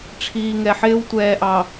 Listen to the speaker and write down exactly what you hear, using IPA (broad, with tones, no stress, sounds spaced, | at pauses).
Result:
ʈ͡ʂʰ iː˨ ŋ ɛ˨ ħ ɪː˦ w tʷ ɛː˨ ʔ ɑ˨